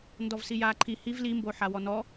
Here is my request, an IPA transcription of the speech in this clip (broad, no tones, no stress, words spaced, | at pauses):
ndɔvsijaːǃʰi hiv limbo ħawɔnɔ